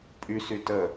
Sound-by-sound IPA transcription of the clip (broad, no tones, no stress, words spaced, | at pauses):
pʼysy tə